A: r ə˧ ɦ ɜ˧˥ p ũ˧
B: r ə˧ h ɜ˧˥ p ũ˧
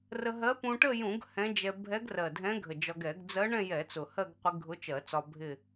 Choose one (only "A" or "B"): A